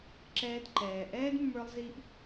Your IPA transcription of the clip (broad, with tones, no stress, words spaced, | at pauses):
ǁɛː˧dǃɛː˨ ʔɛː˦dmːə˞˧lˠzi˧ʔ